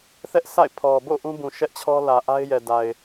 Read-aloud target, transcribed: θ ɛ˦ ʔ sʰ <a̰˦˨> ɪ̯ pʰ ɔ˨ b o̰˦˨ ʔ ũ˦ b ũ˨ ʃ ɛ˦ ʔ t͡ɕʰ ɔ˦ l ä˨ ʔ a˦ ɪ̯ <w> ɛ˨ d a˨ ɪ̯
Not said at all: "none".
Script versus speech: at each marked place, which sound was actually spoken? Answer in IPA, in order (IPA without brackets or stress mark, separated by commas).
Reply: a̰˦˨, j